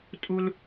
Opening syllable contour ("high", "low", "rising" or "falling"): high